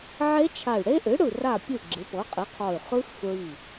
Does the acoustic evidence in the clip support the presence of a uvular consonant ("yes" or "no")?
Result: yes